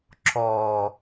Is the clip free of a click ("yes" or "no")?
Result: no